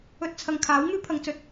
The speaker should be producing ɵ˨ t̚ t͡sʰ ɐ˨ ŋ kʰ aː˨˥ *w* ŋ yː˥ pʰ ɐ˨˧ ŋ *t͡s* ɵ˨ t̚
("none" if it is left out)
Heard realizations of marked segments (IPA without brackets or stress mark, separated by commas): w, t͡s